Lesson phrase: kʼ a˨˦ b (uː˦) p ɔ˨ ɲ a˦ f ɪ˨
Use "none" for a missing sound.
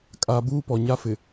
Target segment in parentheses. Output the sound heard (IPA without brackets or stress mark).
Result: uː˦